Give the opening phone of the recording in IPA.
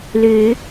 l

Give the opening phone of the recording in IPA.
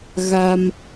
ɣ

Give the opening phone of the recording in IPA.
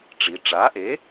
ʈ͡ʂ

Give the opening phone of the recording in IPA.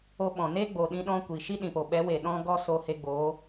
o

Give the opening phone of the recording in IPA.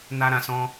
n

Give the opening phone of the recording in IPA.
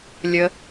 lʲ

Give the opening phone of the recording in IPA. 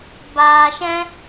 b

